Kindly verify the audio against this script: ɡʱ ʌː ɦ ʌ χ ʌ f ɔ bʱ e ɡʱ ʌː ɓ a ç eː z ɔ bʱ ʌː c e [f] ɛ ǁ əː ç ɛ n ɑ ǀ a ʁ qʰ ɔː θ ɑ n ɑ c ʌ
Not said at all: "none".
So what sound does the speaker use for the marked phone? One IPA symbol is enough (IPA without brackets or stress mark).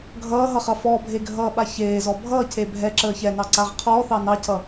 bʱ